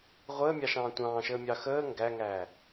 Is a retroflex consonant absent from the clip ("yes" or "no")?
yes